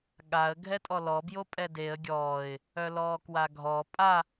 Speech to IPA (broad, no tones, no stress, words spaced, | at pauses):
ɠaə̯ ɡʱɛtʼɔlɔ bjopʼɛdeə̯ ɡʲɔːɪ̯ | œlɔːkwaɡʱɔ pʼa